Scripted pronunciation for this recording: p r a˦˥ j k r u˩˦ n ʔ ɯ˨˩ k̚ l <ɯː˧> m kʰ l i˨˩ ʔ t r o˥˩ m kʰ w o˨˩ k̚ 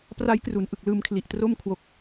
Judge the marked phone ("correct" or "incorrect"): correct